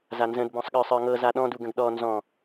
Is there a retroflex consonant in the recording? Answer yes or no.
no